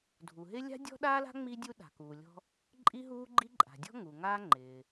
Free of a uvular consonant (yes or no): yes